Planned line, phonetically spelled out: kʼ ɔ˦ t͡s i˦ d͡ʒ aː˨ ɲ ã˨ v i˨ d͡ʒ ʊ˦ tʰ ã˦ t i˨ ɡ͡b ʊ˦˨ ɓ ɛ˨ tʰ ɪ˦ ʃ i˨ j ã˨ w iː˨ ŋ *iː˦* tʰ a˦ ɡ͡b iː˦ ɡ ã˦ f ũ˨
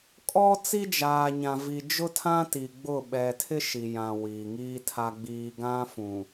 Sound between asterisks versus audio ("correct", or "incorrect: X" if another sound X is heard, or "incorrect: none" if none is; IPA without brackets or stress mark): correct